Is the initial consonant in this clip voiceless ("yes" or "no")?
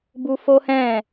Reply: no